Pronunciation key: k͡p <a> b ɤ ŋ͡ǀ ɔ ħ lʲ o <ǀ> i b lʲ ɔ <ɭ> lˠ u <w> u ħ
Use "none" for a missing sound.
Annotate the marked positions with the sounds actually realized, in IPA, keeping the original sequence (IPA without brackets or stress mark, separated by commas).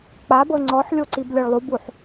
a, ǀ, ɭ, b